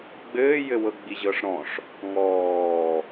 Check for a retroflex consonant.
present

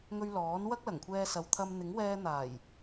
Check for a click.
absent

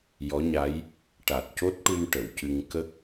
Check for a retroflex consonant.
present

